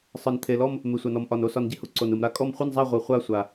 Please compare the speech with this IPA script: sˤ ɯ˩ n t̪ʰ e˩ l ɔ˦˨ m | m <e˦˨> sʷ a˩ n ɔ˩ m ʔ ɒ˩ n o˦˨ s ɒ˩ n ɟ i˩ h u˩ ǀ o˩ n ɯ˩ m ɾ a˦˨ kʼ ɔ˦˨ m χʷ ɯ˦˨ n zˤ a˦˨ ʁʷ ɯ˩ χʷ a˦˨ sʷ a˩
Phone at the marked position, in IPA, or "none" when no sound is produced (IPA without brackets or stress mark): e˩